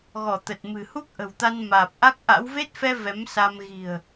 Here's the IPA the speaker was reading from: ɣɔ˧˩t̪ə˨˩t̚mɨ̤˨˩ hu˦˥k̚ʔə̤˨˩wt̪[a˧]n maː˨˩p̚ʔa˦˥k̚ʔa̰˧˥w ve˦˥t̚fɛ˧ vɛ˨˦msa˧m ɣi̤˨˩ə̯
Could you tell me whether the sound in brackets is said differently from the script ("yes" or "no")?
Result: no